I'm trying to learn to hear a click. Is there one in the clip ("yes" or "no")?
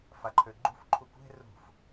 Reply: yes